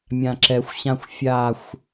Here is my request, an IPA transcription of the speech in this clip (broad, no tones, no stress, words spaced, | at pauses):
mʲãǁɛxʷɕãxʷ fʲaxʷ